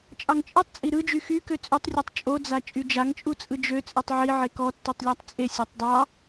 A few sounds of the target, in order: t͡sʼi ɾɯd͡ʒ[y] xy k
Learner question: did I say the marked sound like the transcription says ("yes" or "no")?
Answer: yes